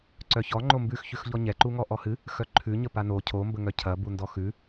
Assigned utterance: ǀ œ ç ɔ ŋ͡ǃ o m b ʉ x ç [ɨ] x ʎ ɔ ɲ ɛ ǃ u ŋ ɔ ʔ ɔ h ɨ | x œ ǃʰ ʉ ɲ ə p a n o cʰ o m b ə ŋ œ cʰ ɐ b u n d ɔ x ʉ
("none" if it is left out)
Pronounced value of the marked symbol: ʉ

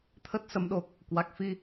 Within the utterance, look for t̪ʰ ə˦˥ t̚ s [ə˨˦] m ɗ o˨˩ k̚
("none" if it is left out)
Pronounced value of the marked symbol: ə˨˦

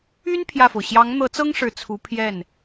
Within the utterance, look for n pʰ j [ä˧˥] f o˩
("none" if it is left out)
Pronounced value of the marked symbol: ä˥˩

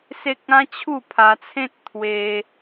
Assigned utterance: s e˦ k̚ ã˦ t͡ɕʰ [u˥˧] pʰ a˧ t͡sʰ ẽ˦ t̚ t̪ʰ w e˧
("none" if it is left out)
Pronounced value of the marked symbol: u˥˧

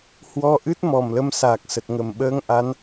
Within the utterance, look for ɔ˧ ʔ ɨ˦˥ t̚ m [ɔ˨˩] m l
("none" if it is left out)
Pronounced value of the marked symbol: ɔ˨˩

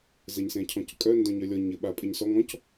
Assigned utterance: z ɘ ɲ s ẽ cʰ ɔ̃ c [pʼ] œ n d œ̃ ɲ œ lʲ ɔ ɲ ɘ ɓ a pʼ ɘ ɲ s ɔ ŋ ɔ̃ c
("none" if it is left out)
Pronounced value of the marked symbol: kʼ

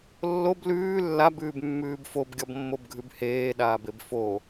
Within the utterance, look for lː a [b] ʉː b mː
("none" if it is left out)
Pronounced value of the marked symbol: b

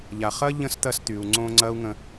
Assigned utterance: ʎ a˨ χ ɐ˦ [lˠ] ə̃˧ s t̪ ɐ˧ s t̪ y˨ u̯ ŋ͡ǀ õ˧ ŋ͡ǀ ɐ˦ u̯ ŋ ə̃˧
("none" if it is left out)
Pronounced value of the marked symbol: ʎ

